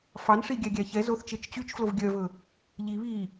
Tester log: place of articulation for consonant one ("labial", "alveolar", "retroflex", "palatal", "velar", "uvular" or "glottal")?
labial